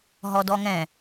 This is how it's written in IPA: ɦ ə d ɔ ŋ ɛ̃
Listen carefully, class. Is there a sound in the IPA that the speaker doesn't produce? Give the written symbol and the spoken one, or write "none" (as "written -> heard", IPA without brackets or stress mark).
ə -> ɔ